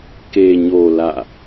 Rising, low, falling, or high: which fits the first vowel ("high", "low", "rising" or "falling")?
low